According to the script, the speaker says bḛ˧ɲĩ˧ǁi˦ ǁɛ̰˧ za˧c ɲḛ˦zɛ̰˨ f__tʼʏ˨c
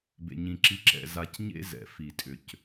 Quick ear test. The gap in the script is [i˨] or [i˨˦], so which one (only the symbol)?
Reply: i˨